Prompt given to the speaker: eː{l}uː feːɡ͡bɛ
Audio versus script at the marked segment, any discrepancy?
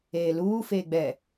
no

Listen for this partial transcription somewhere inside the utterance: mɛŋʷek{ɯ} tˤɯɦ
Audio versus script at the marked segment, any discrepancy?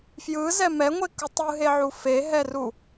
no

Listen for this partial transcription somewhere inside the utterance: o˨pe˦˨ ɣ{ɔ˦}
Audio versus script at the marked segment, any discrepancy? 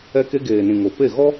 no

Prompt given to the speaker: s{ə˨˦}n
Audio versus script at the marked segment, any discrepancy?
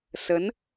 no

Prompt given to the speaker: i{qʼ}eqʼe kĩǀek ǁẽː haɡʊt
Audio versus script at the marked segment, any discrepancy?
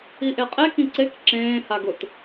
yes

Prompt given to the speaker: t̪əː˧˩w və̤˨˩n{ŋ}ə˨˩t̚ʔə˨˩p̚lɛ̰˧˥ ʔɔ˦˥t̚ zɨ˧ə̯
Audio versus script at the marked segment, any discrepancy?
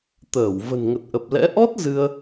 no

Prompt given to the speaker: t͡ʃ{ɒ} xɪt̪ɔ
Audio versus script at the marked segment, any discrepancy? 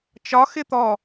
no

